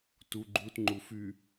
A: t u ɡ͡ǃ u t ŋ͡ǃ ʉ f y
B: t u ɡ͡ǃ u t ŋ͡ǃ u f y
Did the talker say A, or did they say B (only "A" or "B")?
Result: B